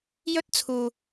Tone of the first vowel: high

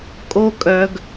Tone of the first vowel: high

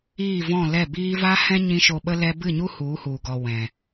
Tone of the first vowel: falling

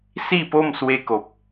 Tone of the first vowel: falling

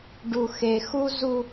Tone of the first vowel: low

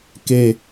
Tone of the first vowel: high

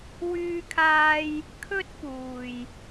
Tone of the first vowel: high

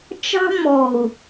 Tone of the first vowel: high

